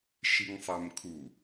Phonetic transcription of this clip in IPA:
ʃ i ŋ sˤ ɛ m kʰ u

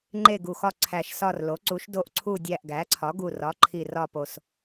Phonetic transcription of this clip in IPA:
ŋ͡ǃ e˦˨ ɡ u˨˩ x ɒ˦˨ ǀʰ æ˨˩ ʃ s ɒ˦˨ r l o˩˥ ǀ u˩˥ ʃ d o˦˨ ʔ ǀʰ u˦˨ dʲ æ˦˨ ʔ ɡ æ˩˥ ǀʰ ɒ˩˥ ɡ u˨˩ r ɒ˩˥ ǃʰ i˨˩ r ɒ˦˨ p o˨˩ s

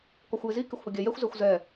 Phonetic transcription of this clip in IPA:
k ɔ xʷ j ɪ z i k ɪ xʷ h ʊ ɡʲ ɛ j ɛ xʷ z ɛ xʷ z ɛ

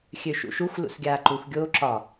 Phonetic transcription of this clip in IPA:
xʲ ø ʃ ṵ ʃ u xʷ l ṵ s ɡʲ aː ǃ u x ɡʲ oː ǁ ɒ

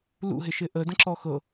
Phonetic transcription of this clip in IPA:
l ṵ ɦ ɪ ʃ ɪ ʔ ə d ə̃ ǁ ɔ x ɤ

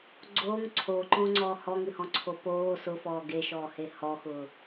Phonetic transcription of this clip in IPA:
ɡ͡ǀ oː ŋ ǀʰ oː ǃ õː ŋ͡ǀ ɔː h ɔ ŋ ɨ h ɔ̃ ǀʰ o p oː s ʊ f ɔː ɡ e ʃ ɔː h e h ɔ x ʊː

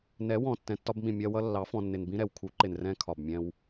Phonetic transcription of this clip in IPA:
n ɛ˨˦ w ɔ̃˨ tː ɛ̃˨ tː ɒ˧ b m ĩ˨ mʲ ɜ˧ w ʌ˧ lː ɑ˨˦ f ɔ̃˨ nː ɪ˨ n b ĩ˦ ɾ ɛ˨ w kʰ u˨˦ ǃ ɪ˨ n r ɛ̃˧ kʰ ɒ˨ b mʲ ɛ̃˧ w

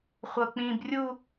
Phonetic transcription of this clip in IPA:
χʷ ɤ k͡p ĩ b rʲ u

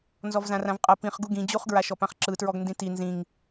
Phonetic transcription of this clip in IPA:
n z ɔ v z ã r ã v qʼ ɤ p ĩ χ ɡ u ɡ ĩ d͡ʑ u χ ɡ ɹ a ʃ ɔ p ã χ ǁ ɯ t ɹ ɔ ɡ n d ĩ t i n z ĩ ŋ

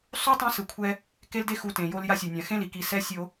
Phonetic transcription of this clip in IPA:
sˤ u˦ tˤ ɛ̃˦ s ɯ˨ kʷʰ ɛ˦ | k e˦ l d e˦ x u˨ t ẽ˨ j o˦ l j a˦ sʲ e˨ nʲ ã˨ x ẽ˦ l i˨ k i˨ s ɛ˦ sʲ o˦

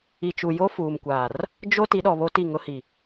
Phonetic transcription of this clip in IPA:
i˨ t͡ʃ u˨ j o˦ f uː˨ m kʷ aː˨ r | d͡ʒ o˦ t i˨˦ ɗ ɔ˨ β o˦ t i˦˨ ŋ ʊ˦ h i˨

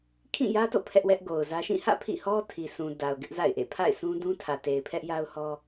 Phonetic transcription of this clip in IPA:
kʰ ĩ˦˨ j ä˦ t o̰˦˨ pʰ ɛ˦ ʔ w ɛ˦ ʔ ɡ o˨ ʊ̯ z ä˦ ʃ ĩ˦˨ h ä̰˦˨ pʰ ḭ˦˨ h ɔ˦ tʰ i˨ sʰ ũ˨ d a˨ ʊ̯ ɡ ɪ˦ ʔ z a̰˦˨ ɪ̯ ʔ ḛ˦˨ pʰ a̰˦˨ ɪ̯ s ũ˦ d ũ˦ tʰ ä˨ t e˨ ɪ̯ pʰ ɛ˦ ʔ j a˦ ʊ̯ h ɔ˦

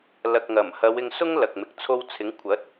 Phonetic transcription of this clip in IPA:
l ɐ˨ k̚ ŋ ɐ˨˩ m h ɐ˨˧ w ɪ˧ ŋ s ʊ˥ ŋ l ɐ˨ k̚ m ɪ˨ k̚ t͡sʰ o˧ w t͡sʰ ɪ˨˥ ŋ kʷʰ ɐ˨˥ t̚

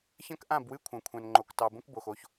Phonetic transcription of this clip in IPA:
ç ɐ̃˦ k ʔ ã˦˨ b w ɨ˦ kʷʰ ã˨ kʷʰ ã˨ n ŋ͡ǃ o˨ k t ɑ˨ b õ˦ k b o˨ x o˦˨ ç

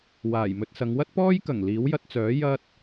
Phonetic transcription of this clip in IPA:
w aː˨˩ j m ɵ˧ t̚ s ɐ˨˧ ŋ w ɐ˥ t̚ p ɔː˥ j k ɐ˨˩ ŋ l iː˨˥ w j ɐ˧ t̚ t͡s œː˨˥ j ɐ˥ t̚

